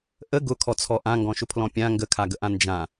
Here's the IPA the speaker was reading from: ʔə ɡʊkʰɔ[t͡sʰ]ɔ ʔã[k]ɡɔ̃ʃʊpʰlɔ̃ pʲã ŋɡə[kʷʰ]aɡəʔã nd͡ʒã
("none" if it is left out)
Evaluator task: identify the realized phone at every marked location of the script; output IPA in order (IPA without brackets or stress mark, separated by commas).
t͡sʰ, ŋ, kʰ